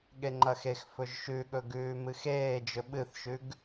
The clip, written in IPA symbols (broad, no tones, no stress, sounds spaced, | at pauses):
ɠ e ŋ͡ǃ ɐ x e x f ɵ ʒ ʃ ʉ ɠ ɵ ɡ ʉː m ɨ x eː d͡ʒ ɵ ɓ ɨ θ ʃ ʉ ɡ